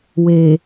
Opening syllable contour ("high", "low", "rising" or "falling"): low